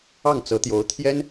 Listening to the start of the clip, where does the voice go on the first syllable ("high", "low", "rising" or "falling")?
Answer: falling